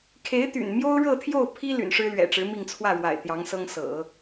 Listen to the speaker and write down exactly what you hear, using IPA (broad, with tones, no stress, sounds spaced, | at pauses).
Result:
kʰ e˧˥ ɪ̯ t̪ y̰˨˩ n m j o˥ ʊ̯ ɻ ɤ˥˧ t̪ʰ j o˥˩ ʊ̯ pʰ i˥ l y̰˨˩ n ʂ ɻ̩˥ l ɥ ɛ̰˨˩ ʈ͡ʂ ɻ̩˧˥ m i˥˧ ŋ t͡sʰ w ä˥˩ ɻ w a̰˨˩ ɪ̯ t̪ j ɑ˧˥ ŋ s ɤ˥ ŋ s ɤ̰˨˩˦